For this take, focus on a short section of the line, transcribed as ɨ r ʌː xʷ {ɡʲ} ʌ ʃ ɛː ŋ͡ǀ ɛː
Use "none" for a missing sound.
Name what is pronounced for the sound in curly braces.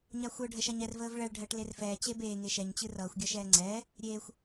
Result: ɡʲ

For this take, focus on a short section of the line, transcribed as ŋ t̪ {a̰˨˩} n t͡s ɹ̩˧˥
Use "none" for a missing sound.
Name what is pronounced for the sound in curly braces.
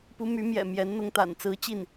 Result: a̰˨˩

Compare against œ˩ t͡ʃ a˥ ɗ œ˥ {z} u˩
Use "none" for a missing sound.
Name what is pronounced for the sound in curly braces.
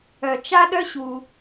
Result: ɕ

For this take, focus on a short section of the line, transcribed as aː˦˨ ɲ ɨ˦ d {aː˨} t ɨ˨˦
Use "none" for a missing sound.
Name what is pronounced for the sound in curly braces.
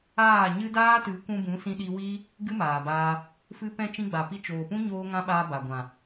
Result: aː˦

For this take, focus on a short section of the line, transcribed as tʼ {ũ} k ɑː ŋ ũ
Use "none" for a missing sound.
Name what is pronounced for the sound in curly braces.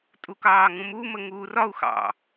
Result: u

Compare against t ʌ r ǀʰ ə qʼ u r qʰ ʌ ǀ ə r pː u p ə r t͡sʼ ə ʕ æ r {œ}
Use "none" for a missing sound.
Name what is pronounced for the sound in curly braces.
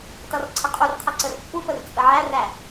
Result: æ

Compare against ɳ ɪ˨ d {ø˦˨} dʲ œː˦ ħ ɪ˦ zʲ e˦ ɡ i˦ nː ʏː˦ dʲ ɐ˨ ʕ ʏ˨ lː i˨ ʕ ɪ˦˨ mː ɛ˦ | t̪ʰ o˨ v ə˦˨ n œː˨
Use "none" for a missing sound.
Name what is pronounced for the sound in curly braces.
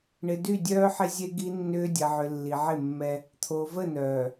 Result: y˦˨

